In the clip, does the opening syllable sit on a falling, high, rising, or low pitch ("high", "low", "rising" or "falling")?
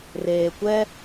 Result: low